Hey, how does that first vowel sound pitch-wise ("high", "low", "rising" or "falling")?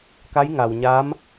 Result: rising